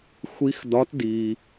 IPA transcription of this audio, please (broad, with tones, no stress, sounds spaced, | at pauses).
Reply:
xʷ i˧˥ x d ɒ˧˥ t d iː˨